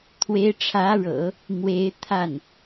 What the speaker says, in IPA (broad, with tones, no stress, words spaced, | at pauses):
t̪ʰwe˧˥ɪ̯ʈ͡ʂʰä˧˥ɻɤ̰˨˩˦ | mwe˧˥ɪ̯t̪ʰa˥˩n